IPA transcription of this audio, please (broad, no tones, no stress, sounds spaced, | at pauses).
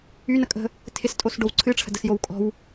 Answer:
y n ə kʼ ə̤ | tʰ ɪ s tʼ o s ɖ o w ǀʰ ɨ ʈ͡ʂʰ ə̤ d ə s j o w kʼ ɔ̤ w